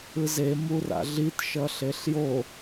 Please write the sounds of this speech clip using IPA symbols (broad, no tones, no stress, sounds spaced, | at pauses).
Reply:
ɯ z e m u r a̰ ɮ i t ʃ ʌ ɬ e ɬ j o